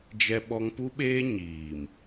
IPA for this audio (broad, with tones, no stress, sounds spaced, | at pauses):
d͡ʒ ɛ˦ ɓ ɔ˦ ŋ p u˦ ɓ eː˦ ɲ iː˨ m